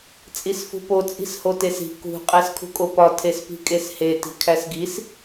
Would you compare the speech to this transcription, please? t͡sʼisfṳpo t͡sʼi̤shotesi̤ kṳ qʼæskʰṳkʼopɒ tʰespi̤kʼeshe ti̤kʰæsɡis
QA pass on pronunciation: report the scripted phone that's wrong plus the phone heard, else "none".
none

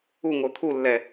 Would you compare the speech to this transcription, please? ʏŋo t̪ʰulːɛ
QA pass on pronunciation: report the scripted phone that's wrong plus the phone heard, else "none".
ʏ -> u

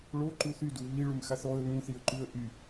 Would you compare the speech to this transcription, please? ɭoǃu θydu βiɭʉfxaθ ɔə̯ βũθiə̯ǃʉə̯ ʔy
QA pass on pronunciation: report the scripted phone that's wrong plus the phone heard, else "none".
f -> m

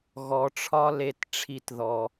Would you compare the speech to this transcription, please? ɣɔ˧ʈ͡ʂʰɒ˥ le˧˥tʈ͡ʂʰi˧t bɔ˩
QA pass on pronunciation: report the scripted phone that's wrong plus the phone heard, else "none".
b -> ð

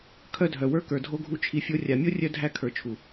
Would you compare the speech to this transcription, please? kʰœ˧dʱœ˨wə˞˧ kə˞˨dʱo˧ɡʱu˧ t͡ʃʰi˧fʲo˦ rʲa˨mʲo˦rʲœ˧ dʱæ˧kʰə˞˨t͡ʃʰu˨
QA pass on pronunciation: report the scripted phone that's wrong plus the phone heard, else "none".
none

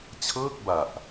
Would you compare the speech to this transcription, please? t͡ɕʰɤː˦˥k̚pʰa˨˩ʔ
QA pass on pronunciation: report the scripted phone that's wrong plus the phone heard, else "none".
pʰ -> b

